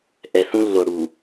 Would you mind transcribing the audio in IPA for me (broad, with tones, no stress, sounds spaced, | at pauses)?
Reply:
ʔ ɛ˨ θ ũ˦ lː o˨ ɽ u˨